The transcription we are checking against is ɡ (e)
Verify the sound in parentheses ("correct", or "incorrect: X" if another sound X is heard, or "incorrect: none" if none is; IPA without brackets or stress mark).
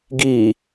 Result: incorrect: i